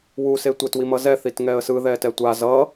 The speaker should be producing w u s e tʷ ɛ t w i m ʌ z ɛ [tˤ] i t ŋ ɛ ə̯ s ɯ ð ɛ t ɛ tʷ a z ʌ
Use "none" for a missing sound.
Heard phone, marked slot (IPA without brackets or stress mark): θ